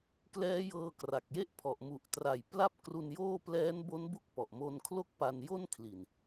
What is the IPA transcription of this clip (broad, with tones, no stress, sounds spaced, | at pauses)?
k l ɛː˦˥ j ɤː˧ k r a˨˩ k̚ j e˥˩ ʔ pʰ ɔ˨˩ ʔ m u˨˩ ʔ t r a˨˩ j p l a˥˩ p̚ k r u˧ n j oː˥˩ p l ɛː˦˥ n b o˦˥ n b u˦˥ k̚ p ɔ˨˩ ʔ m o˧ n kʰ l o˥˩ k̚ p a˧ n j o˥˩ n kʰ l i˨˩ n